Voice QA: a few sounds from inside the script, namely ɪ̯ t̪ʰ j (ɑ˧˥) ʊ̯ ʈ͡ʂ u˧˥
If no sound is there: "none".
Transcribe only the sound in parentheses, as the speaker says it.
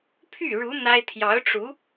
ɑ˧˥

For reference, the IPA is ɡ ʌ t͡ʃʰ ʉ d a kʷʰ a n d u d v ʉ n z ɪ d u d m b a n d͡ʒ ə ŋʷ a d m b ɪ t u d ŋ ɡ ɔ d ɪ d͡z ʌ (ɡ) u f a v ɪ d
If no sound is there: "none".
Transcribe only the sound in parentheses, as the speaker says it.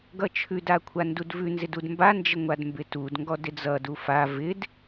d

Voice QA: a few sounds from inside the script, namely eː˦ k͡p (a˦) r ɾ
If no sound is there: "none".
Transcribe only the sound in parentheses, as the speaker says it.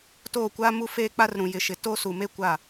a˦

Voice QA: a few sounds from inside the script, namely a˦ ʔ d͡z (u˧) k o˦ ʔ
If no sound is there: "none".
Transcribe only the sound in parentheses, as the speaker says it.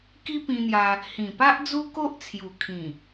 u˦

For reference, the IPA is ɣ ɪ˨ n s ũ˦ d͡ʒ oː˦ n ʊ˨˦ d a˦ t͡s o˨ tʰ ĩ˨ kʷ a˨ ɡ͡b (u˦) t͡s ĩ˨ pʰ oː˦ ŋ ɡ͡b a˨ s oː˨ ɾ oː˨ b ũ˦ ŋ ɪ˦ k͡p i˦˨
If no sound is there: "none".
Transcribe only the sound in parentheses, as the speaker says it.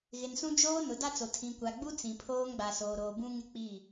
u˦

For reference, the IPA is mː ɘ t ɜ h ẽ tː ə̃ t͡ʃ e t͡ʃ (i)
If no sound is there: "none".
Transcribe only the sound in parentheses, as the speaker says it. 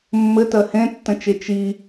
i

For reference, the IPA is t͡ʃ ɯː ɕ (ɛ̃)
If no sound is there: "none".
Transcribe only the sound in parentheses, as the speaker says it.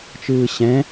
ɛ̃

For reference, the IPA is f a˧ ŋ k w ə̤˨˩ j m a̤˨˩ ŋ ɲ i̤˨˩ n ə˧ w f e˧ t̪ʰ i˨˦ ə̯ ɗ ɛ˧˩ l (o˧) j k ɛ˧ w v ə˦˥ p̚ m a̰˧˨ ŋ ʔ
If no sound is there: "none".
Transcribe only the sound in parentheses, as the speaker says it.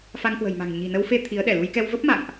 u˧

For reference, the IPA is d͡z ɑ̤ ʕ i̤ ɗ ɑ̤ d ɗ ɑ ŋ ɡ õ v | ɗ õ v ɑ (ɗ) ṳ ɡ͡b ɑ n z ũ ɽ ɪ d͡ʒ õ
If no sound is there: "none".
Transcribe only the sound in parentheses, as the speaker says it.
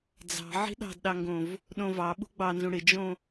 ɓ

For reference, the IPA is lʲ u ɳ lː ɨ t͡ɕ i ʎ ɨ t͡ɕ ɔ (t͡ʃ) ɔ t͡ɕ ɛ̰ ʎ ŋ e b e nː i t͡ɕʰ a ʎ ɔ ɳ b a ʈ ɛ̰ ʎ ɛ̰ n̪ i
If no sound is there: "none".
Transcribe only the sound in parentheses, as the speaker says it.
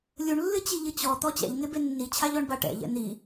t̪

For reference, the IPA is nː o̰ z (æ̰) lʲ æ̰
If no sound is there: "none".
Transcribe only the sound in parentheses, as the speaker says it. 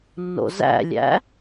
æ̰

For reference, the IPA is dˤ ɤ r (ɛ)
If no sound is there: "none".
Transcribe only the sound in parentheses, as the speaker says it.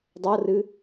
ɨ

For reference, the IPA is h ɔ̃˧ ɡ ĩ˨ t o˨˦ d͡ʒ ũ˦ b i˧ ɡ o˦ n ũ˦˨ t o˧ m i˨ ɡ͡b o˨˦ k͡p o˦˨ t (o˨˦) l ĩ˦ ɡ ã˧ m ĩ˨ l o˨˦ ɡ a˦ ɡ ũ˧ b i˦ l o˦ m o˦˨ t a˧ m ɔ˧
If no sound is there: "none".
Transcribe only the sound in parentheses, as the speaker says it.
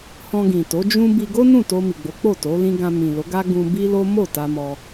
o˨˦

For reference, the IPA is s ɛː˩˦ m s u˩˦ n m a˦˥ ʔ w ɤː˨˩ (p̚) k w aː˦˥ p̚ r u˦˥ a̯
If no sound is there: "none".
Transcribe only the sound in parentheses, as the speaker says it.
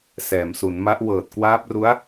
t̚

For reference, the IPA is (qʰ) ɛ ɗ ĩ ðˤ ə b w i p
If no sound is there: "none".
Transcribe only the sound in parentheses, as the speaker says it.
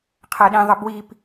qʰ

